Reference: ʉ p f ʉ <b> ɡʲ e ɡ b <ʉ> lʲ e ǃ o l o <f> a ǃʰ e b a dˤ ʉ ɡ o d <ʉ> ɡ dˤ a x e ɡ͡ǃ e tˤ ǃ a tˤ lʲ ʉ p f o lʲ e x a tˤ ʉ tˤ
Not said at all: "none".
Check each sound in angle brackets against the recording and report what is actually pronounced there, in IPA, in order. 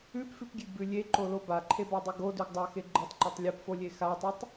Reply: p, ʉ, b, ʉ

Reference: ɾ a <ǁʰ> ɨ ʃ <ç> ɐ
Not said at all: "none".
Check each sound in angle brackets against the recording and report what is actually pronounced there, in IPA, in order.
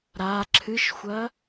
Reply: ǁʰ, xʷ

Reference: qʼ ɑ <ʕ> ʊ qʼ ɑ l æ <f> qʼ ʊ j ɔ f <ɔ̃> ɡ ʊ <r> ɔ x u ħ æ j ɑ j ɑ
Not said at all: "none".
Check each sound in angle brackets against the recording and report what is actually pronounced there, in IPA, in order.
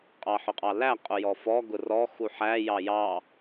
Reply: ħ, none, ɔ, r

